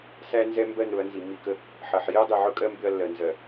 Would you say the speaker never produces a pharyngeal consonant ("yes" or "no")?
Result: no